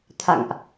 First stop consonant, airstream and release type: aspirated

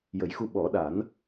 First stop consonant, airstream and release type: implosive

